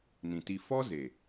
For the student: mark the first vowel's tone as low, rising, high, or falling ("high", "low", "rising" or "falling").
low